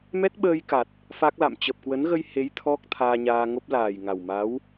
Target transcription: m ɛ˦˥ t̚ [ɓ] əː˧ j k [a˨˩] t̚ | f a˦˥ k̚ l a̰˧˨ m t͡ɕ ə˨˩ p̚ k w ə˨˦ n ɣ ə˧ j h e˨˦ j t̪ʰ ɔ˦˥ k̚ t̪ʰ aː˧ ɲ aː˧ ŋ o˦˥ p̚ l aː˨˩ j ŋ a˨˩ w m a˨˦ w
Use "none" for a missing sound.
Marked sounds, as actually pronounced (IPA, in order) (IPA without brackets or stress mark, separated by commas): ɓ, a˨˩